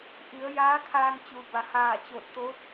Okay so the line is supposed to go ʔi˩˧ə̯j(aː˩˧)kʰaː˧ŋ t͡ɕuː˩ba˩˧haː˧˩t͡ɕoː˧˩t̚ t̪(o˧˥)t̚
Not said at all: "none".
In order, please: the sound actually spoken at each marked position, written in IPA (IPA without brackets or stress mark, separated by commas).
aː˧˥, o˧˥